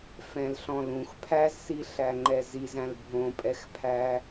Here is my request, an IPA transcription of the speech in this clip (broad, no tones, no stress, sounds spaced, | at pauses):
f ɛ̃ l ɬ ɔ̃ l ũ x pʰ æ z s i ɬ æ ŋ͡ǃ ɛ z i z æ̃ l bʱ õ pʼ ɛ x pʰ æ